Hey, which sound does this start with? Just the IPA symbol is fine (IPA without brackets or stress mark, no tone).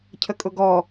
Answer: cʰ